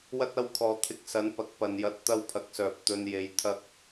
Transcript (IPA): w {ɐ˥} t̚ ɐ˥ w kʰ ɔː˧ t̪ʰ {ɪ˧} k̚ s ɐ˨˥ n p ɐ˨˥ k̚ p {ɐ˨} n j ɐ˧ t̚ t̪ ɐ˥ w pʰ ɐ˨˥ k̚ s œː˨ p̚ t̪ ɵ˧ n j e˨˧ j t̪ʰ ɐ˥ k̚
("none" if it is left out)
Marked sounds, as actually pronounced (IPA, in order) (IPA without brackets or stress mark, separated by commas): ɐ˥, ɪ˧, ɐ˨